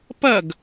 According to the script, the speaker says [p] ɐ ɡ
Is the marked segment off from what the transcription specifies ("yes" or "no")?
no